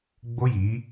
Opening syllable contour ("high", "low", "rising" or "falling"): high